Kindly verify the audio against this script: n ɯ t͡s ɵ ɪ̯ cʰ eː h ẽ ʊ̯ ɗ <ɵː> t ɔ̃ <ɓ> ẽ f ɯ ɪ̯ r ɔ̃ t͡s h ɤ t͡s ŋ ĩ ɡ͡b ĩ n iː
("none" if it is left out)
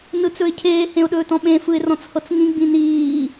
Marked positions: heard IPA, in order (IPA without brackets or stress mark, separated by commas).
ɵː, ɓ